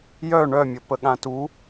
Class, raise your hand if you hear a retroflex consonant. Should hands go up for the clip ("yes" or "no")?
yes